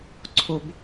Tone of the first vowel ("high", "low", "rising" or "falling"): low